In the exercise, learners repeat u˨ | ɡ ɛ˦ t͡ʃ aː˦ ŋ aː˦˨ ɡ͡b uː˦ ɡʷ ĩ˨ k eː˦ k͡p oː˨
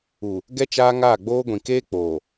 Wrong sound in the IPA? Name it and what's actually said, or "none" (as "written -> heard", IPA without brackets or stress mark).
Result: uː˦ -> oː˦